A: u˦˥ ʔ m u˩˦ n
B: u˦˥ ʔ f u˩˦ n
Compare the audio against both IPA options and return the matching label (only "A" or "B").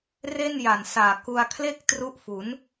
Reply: B